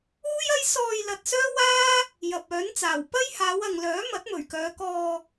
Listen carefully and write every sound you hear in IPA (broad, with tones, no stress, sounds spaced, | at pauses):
uː˥ j ɐ˥ j s ɔː˧ j l ɐ˨ t̚ s œː˥ w aː˥ | j ɐ˨ p̚ œː˨˥ n t͡s aː˨˩ w p ɐ˥ j h aː˨˧ w ɐ˨ ŋ l œː˨˥ m ɐ˨˥ t̚ m ɵ˨˩ ɥ k œː˨˧ k ɔː˧